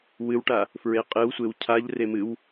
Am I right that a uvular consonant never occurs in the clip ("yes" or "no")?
no